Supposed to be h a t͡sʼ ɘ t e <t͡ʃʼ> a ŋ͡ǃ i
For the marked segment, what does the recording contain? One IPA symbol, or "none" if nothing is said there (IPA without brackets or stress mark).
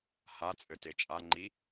t͡ʃʼ